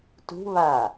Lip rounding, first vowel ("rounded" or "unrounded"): rounded